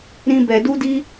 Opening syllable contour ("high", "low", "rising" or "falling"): high